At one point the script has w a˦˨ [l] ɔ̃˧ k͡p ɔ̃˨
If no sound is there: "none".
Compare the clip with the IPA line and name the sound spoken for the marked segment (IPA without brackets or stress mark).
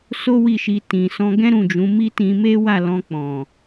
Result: l